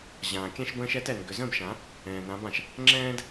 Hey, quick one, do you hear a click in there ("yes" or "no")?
yes